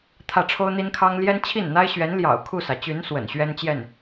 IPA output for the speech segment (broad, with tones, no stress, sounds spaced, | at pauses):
t̪ʰ ä˥˩ ʈ͡ʂʰ o˥ ʊ̯ n̪ i˥ n kʰ ɑ˥ ŋ l j ɛ˥ n t͡ɕʰ i˥˩ n n̪ a˥ ɪ̯ ɕ ɥ ɛ˧˥ n l j ɑ̰˨˩ ʊ̯ kʰ u˥˩ s ä˩ t͡ɕ y˧˥ n s w ə̰˨˩ n ɕ ɥ ɛ˥ n t͡ɕ j ɛ˥˩ n